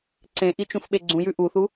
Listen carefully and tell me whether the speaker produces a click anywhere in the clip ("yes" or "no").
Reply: yes